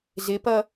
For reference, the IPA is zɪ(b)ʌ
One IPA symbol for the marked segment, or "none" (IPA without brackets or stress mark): p